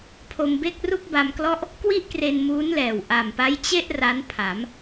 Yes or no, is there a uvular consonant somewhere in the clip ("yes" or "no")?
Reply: no